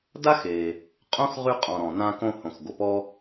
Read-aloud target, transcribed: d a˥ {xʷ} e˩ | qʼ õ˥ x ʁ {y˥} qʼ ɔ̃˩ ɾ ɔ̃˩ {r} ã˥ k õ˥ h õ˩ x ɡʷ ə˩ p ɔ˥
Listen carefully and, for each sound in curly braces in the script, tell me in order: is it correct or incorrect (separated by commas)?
incorrect, correct, incorrect